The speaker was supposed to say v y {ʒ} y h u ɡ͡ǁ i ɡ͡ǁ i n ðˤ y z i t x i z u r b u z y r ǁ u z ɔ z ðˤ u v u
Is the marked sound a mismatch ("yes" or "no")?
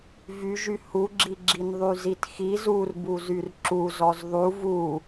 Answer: no